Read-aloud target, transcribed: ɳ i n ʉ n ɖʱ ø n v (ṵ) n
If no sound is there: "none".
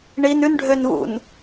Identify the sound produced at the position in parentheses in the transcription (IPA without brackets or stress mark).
ṵ